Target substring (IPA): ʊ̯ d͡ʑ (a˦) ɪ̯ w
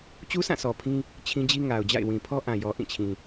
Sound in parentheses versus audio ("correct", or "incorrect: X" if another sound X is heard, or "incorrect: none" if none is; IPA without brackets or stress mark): incorrect: a̰˦˨